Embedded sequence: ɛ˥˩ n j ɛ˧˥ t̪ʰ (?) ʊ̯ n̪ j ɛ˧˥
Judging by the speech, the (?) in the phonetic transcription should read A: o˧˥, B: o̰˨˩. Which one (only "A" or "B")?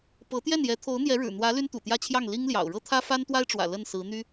A